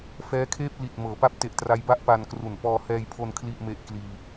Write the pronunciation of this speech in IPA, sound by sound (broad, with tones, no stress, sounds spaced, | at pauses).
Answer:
f ɛː˦˥ kʰ eː˥˩ p̚ l i˨˩ t̚ m ɤː˩˦ p a˦˥ p̚ t e˨˩ ʔ t r a˦˥ j b a˥˩ ʔ p a˧ n k r u˨˩ n p ɔː˧ h ɛː˧ j pʰ o˧ n kʰ l i˥˩ ʔ m e˥˩ ʔ k l iː˧